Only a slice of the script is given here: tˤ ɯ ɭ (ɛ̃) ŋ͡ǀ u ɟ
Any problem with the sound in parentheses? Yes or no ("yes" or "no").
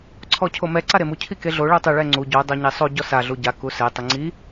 yes